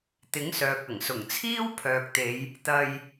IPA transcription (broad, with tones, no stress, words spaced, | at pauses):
t̪ɪ˨˥ŋsœː˨k̚ ɐ˨˩ŋsʊ˨˩ŋt͡sʰiː˥w pʰœː˨k̚t̪e˨˧j | t̪ɐ˧j